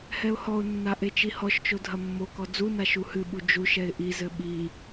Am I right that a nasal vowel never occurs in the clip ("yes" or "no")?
yes